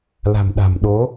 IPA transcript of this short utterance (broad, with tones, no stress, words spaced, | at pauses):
la̤˨˩mɗa̤˨˩mɗo˨˦